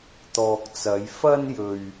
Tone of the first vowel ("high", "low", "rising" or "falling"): low